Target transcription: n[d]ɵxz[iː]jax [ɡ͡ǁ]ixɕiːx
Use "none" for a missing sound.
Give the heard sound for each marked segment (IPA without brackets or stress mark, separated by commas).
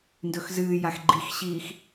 d, ɨː, ɡ͡ǃ